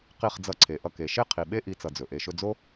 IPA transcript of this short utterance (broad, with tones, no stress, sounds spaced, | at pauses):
q i˦˨ χ d͡z ʌ˧ ǀʰ e˨ ʔ ʌ˧ k e˨ ʃ e˦ qʰ i˨ ɓ e˦ ʔ i˦ t͡s ʌ˧ d͡z ɵ˨ ʔ e˨ ʃ ɵ˧ d͡z o˦